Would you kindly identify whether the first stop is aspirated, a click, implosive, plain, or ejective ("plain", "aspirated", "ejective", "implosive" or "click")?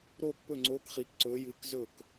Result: plain